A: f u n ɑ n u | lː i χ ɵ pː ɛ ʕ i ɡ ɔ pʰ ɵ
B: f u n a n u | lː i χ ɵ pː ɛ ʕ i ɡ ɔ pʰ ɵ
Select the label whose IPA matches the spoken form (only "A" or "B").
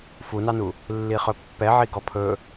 A